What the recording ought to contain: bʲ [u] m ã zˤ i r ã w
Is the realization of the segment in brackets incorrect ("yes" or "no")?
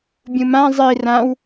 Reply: yes